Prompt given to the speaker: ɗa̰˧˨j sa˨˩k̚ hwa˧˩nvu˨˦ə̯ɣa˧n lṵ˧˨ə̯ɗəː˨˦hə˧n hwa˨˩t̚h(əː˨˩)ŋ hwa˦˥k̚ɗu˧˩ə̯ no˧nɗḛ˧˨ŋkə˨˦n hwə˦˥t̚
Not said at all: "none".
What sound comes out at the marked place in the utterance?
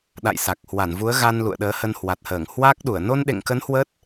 əː˧˩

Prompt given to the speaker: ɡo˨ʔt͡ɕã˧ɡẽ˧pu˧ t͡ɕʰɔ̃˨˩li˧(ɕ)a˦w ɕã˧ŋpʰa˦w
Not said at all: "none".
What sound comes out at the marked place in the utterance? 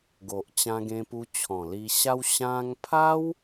ɕ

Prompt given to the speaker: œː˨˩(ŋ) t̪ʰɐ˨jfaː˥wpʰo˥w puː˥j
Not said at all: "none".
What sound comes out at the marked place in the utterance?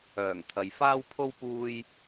ŋ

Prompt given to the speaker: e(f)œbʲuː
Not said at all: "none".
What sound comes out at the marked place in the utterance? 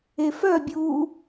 f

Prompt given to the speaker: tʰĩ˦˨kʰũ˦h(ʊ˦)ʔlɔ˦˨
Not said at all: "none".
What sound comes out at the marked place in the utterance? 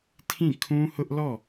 ʊ˦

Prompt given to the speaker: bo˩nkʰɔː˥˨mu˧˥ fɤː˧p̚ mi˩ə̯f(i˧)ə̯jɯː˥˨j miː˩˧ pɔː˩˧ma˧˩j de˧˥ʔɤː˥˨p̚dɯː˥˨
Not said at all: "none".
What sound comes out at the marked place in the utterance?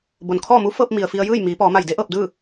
i˧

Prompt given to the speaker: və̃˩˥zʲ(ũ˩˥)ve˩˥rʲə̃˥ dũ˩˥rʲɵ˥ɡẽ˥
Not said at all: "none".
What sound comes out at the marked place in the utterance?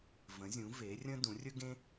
ũ˩˥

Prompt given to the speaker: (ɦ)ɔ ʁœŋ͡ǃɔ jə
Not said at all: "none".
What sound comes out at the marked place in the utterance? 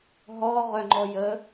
ɦ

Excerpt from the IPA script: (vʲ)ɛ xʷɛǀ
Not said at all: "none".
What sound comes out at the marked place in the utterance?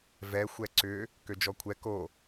v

